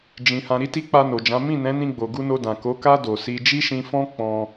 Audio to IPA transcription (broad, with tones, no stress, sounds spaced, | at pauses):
d͡ʒ ĩ˨ h ã˨ ɾ i˧ t i˧ k͡p a˧ n o˨ d͡ʒ ã˨˦ m ĩ˦˨ n ɛ̃˨˦ n ĩ˧ ɡ͡b o˨ ɡ u˧ n o˧ d ã˨ k o˨˦ k a˦ d o˧ s i˦ d͡ʒ i˦ ʃ ĩ˧ f ɔ̃˦ k͡p ɔ̃˧